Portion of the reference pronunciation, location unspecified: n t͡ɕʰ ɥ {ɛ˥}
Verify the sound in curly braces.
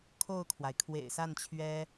correct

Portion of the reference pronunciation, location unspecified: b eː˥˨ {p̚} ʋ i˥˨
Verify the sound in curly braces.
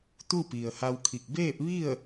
correct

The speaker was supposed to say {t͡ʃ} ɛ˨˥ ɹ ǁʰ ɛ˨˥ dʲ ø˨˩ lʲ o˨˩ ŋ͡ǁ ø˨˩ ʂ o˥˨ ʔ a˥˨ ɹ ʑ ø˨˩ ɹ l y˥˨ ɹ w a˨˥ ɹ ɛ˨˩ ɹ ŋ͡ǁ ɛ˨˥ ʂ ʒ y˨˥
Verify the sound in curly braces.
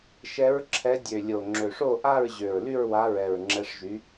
incorrect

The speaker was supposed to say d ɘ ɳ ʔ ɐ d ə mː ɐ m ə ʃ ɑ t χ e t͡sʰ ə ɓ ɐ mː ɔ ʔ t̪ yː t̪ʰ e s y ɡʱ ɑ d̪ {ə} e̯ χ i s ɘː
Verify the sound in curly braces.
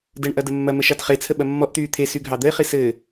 correct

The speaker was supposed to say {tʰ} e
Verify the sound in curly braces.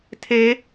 correct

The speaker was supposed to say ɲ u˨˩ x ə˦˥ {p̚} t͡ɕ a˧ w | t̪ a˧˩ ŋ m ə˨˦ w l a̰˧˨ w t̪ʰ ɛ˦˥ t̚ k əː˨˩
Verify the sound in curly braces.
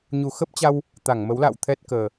correct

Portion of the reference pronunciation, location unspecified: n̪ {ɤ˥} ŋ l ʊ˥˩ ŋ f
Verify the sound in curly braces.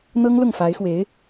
correct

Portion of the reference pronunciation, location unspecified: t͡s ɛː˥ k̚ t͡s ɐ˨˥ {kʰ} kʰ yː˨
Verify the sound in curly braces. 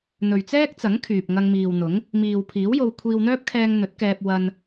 incorrect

